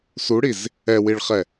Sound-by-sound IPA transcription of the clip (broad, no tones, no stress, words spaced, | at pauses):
suɽiz | ɛwiɭχɛ